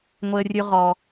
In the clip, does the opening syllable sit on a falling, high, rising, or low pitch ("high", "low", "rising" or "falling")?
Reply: low